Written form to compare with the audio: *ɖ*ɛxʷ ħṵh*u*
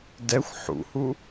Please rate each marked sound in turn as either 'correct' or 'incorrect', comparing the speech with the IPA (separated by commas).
incorrect, correct